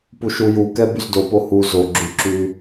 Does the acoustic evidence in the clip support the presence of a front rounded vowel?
yes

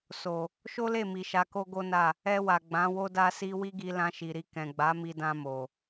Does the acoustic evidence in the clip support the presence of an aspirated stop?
no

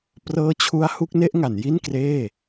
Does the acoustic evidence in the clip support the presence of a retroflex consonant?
no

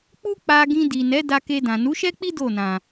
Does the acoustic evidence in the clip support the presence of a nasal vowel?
yes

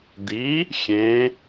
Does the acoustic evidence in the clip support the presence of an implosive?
no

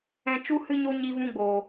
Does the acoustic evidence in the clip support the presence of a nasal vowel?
yes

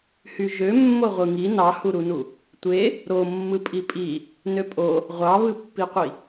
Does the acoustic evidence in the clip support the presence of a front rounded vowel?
yes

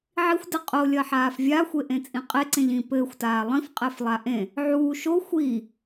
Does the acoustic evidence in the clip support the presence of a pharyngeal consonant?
yes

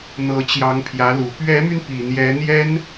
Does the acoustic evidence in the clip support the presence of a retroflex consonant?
no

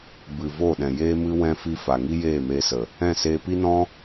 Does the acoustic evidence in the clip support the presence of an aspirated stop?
no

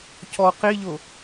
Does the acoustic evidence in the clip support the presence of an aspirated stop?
no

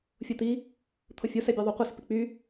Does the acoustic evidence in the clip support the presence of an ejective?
no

